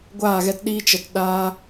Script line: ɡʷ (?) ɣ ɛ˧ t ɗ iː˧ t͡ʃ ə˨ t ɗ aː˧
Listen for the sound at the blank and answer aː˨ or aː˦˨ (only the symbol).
aː˦˨